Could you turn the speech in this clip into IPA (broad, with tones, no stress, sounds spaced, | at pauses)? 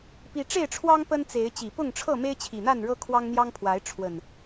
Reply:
p i˦ ʈ͡ʂ e˥˨ ɪ̯ ʈ͡ʂʰ w ɑ˦ ŋ p ə˦ n t͡s e˨˦ ɪ̯ t͡ɕ i˨˩ p ʊ˥˨ ŋ ʈ͡ʂʰ ɤ˥˨ m e˦ ɪ̯ t͡ɕʰ i˨˩ n̪ a˥˨ n ɻ ɤ˦ kʰ w ɑ˦ ŋ n̪ j ɑ˦ ŋ pʰ w a˨˦ ɪ̯ ʈ͡ʂʰ w ə˨˩ n